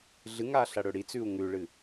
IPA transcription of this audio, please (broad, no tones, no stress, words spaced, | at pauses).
ɮɨŋa ɬɐɽɵɽit͡sʉu̯ ŋʉɭɨ